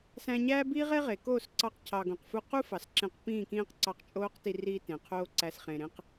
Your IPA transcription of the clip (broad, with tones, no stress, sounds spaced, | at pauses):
s æ̃˧ ɲ æː˦ b iː˦ ʁ e˦ ʁ e˨ k oː˦˨ s ǀ ɑ˧ q cʰ ɑ˨ ɡ õ˨ q f u˧ q u˦ f ɑ˨ s ǁ ẽ˧ q p ĩː˦˨ k ĩː˦ q ǀ ɑ˧ q t͡ʃʼ oː˦ q t i˧ r iː˧ t ẽ˨ qʰ oː˦ ǀ æ˧ s χ ẽ˨ ɾ ẽ˦ q